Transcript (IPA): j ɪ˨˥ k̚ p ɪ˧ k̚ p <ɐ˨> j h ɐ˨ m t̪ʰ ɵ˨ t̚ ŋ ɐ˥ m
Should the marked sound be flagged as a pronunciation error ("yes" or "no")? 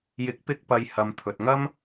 no